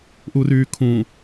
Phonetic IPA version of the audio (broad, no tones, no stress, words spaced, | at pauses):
ʔuryːkʰũ